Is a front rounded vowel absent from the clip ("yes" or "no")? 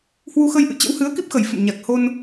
yes